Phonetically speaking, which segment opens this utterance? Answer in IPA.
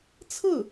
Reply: t͡sʰ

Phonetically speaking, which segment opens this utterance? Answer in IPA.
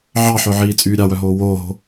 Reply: ʕ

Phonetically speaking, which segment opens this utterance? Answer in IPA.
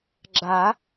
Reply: ɡ͡ǁ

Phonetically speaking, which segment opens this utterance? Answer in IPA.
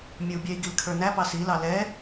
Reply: mʲ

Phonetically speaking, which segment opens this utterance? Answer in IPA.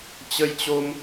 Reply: t͡ɕ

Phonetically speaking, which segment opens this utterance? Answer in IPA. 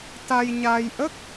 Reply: t̪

